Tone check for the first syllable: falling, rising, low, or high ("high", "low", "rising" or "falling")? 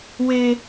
high